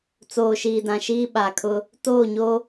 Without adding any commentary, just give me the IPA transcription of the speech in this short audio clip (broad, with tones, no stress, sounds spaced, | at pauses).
t͡s oː˨ ʃ iː˨ d ã˨ ʃ iː˦ ɓ a˨ kʰ ʊ˦ | t oː˦˨ ɲ o˦